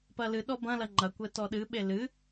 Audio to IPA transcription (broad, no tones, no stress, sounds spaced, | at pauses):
p ɐ l ɨ ɗ ɔ b ɐ̃ l ɐ ŋ͡ǃ ɐ kʷ ɘ t ɔ ɗ ɨ ɓ e l ɨ